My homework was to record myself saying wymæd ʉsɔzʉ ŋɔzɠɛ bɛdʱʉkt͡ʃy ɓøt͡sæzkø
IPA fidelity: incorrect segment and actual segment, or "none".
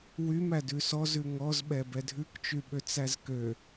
ɠ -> ɓ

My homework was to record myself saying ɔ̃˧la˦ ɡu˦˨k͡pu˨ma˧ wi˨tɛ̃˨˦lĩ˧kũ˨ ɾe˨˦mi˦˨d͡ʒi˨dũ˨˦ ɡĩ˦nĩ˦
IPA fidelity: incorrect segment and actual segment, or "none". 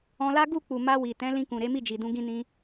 none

